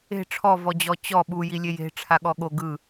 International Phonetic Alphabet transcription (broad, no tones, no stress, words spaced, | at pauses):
e̤ ʈ͡ʂʰɔvɔd͡ʑɔ t͡ɕɔ ɓujilʲe je̤ʈ͡ʂʰaɠɔ ɠo ɡɯ